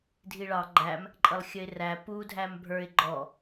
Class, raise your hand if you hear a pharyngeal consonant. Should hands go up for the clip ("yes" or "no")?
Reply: no